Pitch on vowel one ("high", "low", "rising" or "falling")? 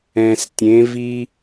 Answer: low